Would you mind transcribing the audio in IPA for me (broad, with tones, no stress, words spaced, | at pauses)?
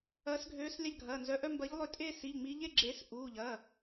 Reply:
ɐː˨˦sɡʱøː˨˦slʲa˦˨ʎɡʱɐː˩˧˩ nzœ˩˧˩ʔœ˦˨mbɐ˨˦ʎlˠø˨˦ tʼeː˦˨ si˩˧˩ʎŋ͡miː˨˦ʎe˦˨ɡ͡ǁeː˨˦s ʔuː˩˧˩ʎɐ˩˧˩